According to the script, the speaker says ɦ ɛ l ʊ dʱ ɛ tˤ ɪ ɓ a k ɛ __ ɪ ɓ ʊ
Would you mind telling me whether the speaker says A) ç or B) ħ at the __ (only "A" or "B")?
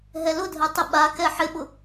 B